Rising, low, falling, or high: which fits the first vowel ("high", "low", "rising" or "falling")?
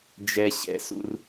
high